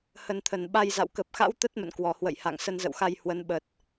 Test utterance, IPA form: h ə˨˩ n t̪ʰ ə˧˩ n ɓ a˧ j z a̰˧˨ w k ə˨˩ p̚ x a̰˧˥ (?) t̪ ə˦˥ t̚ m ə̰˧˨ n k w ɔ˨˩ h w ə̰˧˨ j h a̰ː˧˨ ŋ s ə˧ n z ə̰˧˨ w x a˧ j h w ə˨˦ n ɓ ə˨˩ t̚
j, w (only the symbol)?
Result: w